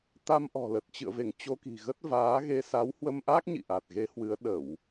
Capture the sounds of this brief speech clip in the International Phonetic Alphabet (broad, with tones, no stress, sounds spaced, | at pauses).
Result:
t̪ a˧ m ʔ ɔ̤˨˩ l ə˨˩ t̚ t͡ɕ ɨ̰˧˨ ə̯ v e˧˩ ŋ t͡ɕ o˧ k i̤˨˩ ɣ ə˦˥ t̚ v aː˨˦ ɣ e˧ s a˨˦ w h w ə˧ m ʔ a˦˥ k̚ ɲ ḭ˧˨ ʔ a˨˩ t̚ ɣ e˨˦ h w ɨ˨˦ ə̯ ɗ ə˧˩˨ w